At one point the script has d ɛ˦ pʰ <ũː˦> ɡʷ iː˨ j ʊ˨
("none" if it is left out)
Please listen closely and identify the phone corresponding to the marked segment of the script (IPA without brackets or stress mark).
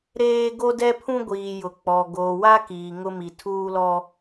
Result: ũ˦